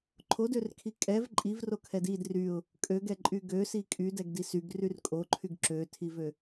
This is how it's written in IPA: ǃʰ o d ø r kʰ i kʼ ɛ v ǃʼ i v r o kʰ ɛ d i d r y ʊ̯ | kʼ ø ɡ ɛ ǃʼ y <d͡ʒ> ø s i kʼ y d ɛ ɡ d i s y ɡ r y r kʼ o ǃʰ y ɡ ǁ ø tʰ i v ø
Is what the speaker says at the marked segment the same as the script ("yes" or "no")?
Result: no